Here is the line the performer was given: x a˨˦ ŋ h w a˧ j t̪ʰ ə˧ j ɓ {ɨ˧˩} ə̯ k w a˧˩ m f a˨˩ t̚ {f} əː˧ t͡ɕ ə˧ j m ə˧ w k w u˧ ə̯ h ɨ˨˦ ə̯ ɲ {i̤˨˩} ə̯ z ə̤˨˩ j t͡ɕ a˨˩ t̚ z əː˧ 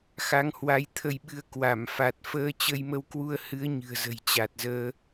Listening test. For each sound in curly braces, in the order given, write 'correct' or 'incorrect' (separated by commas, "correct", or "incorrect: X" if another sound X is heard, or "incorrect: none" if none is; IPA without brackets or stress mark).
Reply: incorrect: ɨ˧, correct, incorrect: ɨ̤˨˩